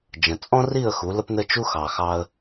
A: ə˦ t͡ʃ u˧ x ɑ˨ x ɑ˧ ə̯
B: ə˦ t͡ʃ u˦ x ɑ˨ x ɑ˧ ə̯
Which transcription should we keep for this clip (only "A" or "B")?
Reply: B